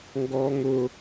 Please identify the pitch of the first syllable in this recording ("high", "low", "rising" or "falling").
high